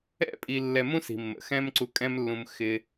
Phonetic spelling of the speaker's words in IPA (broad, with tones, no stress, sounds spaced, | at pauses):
ɛ̰˥ pʼ i˧ lː ɛ˧ m ũ˥ s i̤˩ mː ə̰˩ x ɛ̃˥ m ǀ u˧ kʼ ɛ̃˥ m lː ũ˧ m x ɪ˧